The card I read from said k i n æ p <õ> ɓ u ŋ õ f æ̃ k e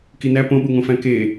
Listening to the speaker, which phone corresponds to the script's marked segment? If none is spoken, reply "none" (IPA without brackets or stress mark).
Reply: õ